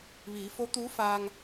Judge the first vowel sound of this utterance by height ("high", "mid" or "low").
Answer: high